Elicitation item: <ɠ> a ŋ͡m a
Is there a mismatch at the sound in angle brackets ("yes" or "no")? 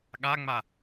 no